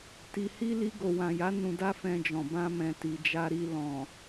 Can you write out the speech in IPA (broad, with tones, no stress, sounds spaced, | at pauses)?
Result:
t i˨ h i˧ l i˧ ɡ o˨ w ã˨ j a˨˦ n ũ˧ d a˦ f ɛ̃˧ d͡ʒ ɔ̃˨ b ã˧ m ɛ̃˨ t i˨ d͡ʒ a˧ ɾ i˧ l ɔ̃˨